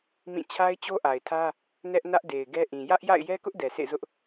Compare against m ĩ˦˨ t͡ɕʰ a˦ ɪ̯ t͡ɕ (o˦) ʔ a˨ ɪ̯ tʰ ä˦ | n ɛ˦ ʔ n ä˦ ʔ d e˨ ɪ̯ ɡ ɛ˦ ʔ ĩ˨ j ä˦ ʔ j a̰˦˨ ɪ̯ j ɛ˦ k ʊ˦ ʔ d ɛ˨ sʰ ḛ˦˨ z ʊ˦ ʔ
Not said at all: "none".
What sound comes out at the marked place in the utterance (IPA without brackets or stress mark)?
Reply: o˦